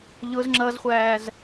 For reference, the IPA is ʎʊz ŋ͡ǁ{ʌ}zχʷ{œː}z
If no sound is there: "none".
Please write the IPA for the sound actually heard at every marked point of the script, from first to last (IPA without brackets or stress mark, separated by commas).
ʌ, æː